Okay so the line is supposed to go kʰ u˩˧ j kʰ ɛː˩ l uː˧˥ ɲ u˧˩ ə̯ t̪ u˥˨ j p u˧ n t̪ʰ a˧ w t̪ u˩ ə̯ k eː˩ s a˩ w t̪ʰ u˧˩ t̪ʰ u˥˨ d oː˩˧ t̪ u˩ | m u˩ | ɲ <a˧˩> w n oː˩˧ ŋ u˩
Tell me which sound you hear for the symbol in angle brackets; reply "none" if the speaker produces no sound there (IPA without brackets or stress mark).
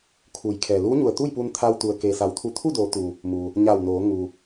a˧˩